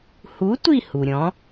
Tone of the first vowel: rising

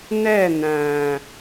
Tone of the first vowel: falling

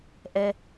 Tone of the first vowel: low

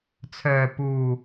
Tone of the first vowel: low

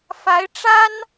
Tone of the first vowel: rising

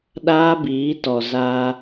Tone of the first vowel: high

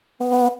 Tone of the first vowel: high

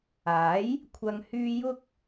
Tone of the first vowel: rising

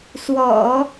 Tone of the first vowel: low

